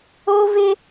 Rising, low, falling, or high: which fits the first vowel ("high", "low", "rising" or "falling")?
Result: high